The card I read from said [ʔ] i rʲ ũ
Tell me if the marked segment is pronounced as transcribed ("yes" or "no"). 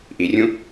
yes